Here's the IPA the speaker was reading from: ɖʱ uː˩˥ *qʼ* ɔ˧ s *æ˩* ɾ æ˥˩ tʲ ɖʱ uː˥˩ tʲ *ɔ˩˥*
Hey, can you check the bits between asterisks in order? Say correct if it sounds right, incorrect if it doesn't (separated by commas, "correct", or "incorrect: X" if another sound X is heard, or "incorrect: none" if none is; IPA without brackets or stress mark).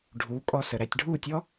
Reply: incorrect: kʼ, incorrect: ə˩, incorrect: ɔ˥